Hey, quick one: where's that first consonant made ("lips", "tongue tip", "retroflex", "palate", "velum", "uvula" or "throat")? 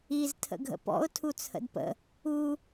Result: tongue tip